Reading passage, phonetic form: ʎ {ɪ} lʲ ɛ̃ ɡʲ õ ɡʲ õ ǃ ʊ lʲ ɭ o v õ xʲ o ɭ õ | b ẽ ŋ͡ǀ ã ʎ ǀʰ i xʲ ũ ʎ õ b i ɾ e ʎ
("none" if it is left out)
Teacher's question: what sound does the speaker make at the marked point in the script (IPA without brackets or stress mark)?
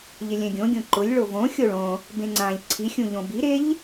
ɪ